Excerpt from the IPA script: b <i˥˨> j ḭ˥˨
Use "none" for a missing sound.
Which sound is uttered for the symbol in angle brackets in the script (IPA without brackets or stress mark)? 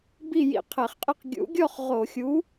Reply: i˥˨